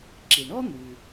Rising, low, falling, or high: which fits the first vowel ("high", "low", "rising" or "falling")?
low